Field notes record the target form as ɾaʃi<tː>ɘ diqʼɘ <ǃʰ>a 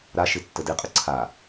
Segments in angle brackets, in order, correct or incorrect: correct, incorrect

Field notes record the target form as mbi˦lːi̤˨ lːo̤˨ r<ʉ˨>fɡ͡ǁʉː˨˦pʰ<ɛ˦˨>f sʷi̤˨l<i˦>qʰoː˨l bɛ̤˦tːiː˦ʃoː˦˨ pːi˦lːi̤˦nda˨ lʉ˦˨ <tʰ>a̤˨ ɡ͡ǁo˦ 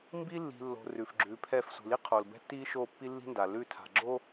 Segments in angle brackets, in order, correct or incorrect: correct, correct, correct, correct

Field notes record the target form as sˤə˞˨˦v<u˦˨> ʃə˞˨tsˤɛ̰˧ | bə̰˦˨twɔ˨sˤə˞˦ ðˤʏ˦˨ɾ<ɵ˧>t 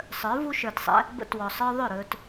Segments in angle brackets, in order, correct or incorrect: incorrect, correct

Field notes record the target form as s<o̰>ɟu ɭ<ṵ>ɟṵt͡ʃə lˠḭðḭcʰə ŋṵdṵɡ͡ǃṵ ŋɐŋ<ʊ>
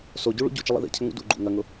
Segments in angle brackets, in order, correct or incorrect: incorrect, correct, correct

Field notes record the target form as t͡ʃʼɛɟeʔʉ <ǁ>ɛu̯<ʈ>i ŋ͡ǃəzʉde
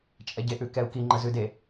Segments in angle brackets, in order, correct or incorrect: incorrect, incorrect

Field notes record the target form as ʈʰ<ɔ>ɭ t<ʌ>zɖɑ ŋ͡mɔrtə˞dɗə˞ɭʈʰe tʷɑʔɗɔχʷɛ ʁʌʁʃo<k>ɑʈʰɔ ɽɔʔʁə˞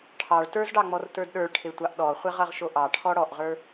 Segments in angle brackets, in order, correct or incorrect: incorrect, incorrect, incorrect

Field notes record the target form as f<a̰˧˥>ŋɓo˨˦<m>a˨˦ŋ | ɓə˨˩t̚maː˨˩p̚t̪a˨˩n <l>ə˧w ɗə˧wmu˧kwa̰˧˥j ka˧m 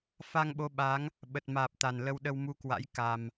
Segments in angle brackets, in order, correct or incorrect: incorrect, incorrect, correct

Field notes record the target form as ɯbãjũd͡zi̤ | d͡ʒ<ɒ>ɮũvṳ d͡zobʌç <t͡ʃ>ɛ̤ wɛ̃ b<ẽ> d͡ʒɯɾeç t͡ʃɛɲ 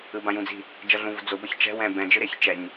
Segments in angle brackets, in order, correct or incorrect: incorrect, correct, incorrect

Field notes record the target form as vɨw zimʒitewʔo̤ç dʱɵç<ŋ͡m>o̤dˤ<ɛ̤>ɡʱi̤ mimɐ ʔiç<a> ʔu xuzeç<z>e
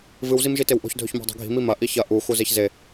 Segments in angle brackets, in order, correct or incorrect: incorrect, incorrect, incorrect, correct

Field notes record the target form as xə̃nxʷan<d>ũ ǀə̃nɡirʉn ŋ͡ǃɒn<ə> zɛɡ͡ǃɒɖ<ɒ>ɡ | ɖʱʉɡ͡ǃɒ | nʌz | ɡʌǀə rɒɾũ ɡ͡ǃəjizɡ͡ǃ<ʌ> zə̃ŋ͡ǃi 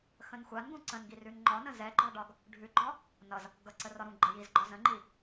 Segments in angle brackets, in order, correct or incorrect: incorrect, incorrect, correct, incorrect

